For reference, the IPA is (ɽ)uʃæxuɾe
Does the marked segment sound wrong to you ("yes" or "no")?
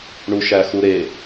yes